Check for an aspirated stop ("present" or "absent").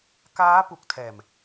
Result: present